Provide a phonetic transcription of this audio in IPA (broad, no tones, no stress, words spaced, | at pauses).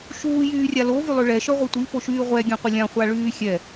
ʃuːjyːrʲa lovylˠø ɭɛʃœʁʷɛ tʷifoʃyː ʁʷɛɡʲẽqʷə lʲãχʷaɭyː xʲɛ